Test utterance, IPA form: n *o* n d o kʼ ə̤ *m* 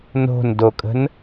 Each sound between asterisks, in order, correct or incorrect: incorrect: o̤, incorrect: n

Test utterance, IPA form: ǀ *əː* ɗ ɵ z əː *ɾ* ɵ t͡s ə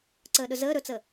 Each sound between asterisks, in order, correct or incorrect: correct, correct

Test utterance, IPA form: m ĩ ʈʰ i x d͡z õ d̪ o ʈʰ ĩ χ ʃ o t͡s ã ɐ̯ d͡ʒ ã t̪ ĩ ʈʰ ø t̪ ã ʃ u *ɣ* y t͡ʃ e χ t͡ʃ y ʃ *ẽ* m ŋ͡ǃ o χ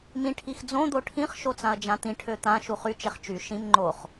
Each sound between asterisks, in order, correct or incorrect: incorrect: χ, incorrect: ĩ

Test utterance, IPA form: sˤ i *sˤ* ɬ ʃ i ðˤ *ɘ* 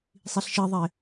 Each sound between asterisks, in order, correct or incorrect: incorrect: none, incorrect: e

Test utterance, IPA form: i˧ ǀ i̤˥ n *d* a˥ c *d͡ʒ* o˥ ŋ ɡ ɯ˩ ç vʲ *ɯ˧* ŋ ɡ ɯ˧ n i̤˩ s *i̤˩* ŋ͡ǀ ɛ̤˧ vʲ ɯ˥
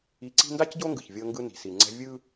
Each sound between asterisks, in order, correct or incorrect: correct, incorrect: ɟ, incorrect: ɤ˧, incorrect: i˩

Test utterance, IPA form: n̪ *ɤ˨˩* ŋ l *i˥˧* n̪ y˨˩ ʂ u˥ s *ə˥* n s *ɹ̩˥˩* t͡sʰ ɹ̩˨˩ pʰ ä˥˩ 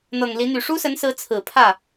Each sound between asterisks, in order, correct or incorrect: correct, incorrect: i˧˥, incorrect: ə˧˥, incorrect: ɹ̩˧˥

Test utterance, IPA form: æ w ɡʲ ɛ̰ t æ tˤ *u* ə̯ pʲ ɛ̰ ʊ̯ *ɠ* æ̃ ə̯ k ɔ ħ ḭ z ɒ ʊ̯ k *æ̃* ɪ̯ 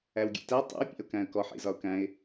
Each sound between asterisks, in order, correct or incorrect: incorrect: ṵ, incorrect: k, correct

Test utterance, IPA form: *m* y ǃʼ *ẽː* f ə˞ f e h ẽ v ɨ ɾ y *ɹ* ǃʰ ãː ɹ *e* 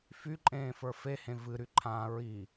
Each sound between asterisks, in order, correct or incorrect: incorrect: f, correct, incorrect: none, incorrect: i

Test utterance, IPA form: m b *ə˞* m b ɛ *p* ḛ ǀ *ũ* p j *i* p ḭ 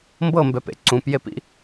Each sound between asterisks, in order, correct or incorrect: incorrect: ɤ, correct, correct, incorrect: e

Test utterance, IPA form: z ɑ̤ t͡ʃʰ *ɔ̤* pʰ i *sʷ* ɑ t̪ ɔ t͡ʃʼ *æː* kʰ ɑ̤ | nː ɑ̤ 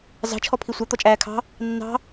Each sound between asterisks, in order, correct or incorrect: incorrect: ɔ, correct, correct

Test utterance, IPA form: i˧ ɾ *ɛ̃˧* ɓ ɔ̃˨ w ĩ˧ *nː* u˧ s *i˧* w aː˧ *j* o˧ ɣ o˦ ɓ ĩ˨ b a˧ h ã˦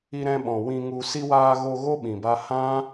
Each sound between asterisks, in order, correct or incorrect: correct, incorrect: ŋ, correct, incorrect: ɣ

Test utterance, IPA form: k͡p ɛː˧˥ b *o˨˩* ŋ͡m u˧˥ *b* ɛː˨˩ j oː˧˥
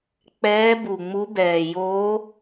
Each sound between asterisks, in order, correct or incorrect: incorrect: u˨˩, correct

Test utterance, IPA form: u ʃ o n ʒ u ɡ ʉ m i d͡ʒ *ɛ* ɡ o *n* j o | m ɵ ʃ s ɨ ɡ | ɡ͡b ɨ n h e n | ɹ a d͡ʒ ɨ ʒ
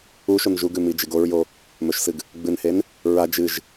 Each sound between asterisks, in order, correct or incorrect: incorrect: ɨ, incorrect: ɹ

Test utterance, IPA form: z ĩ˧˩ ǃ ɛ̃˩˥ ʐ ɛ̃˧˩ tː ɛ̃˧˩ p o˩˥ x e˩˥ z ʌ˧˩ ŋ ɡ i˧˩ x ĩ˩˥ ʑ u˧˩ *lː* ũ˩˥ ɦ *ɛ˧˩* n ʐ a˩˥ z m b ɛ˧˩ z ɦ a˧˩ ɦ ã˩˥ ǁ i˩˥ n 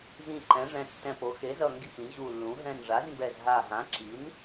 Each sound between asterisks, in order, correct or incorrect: correct, incorrect: ɛ̃˧˩

